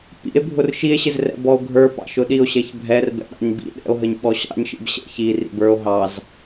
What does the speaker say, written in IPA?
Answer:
p ḭ e̯ bʱ ʊ r ʃ i e̯ ɕ ɪ z r ɛ̰ b ɔ o̯ ɡʱ ə˞ p ɑ̰ ʃ ʊ ɗ i o̯ ɕ ɛ ç bʱ ɛ r b ɛ̰ ɗ ɑ̰ ɲ b ḭ ɗ ɛ̰ o̯ ɦ ə ɲ ɓ ɔ ɕ ɑ̰ ɲ ʃ ḭ b ɕ ɛ̰ ç i r ḭ b ə˞ o̯ ɦ ɑ z

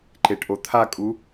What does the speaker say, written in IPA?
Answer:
ǃ e ʈ ʔ o t̪ʰ a kʼ u

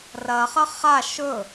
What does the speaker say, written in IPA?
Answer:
r ɐ χ ɐ χ a ʃ ɵ

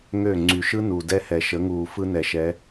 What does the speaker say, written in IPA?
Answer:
ŋ ø˦˨ ŋ͡ǀ y˨ ʃ ɯ˦ n u˨ d ɛ˦ h ɛ˨ ʃ ə˨˦ ŋ uː˨ f ɯ˦ n ɛ˨ ʃ ɛ˨˦

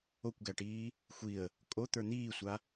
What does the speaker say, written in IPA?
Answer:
o kʷ ɡ æ ʈ iː | xʷ i ə̯ | kʼ o t̪ ə˞ n̪ iː sʷ a

